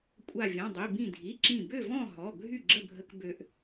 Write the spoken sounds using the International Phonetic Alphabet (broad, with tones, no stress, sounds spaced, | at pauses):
kʷʼ a˧˩ vʲ ɔ̃˩˧˩ dˤ i˩˧˩ b ĩ˧˩ dʱ i˩˧˩ ǁ ĩ˧˩ b ø˥˨ v ɔ̃˥˨ ɦ ɔ˩˧˩ ɡʱ y˥˨ ɡ͡ǁ ə˥˨ bʱ ə˦ k b ø˦ ʔ